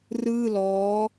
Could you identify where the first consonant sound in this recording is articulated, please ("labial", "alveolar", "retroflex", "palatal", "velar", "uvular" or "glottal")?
alveolar